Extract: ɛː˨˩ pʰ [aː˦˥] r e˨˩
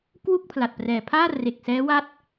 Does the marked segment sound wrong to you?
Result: yes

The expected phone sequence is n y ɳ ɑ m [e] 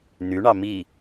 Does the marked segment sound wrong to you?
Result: yes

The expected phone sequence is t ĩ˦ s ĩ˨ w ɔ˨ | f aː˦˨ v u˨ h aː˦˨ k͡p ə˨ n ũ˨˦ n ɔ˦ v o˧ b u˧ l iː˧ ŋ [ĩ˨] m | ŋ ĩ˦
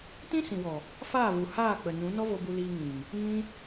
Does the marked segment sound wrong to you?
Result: no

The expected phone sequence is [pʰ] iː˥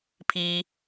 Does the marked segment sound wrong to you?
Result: no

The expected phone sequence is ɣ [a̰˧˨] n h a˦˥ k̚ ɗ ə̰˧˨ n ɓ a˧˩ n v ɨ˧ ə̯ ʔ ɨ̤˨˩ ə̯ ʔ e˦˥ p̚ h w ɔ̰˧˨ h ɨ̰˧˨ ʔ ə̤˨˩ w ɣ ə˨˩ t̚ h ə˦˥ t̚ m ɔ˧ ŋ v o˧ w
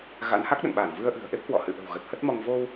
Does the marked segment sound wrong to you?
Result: yes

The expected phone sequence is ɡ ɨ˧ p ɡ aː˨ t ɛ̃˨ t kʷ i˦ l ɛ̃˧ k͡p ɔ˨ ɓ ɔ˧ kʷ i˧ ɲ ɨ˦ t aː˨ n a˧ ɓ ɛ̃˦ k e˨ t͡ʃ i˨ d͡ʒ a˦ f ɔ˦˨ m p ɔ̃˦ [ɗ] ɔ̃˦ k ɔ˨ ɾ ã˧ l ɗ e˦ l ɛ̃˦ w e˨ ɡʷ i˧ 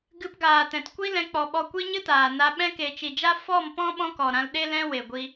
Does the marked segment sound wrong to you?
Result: yes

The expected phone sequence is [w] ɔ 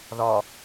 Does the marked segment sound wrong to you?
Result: yes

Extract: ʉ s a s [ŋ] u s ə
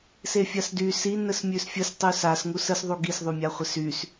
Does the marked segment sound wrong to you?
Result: no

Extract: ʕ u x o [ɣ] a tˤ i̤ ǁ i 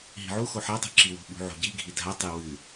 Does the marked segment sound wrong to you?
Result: yes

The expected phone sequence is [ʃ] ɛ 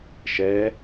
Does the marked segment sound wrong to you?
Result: no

